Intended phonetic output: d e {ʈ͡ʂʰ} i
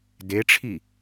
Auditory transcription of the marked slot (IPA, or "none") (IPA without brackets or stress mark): ʈ͡ʂʰ